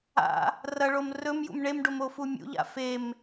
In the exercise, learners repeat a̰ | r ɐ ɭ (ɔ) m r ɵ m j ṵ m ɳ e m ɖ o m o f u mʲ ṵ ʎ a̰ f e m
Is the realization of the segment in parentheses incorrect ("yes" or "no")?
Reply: yes